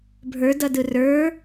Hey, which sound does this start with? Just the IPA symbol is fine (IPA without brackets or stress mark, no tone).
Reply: bʱ